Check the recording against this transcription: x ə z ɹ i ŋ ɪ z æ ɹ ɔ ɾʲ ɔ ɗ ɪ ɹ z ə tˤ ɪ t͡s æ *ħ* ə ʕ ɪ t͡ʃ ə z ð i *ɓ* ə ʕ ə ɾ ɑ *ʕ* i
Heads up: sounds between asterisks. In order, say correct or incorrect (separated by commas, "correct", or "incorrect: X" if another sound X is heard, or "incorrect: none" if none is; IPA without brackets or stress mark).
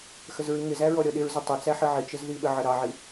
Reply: correct, correct, correct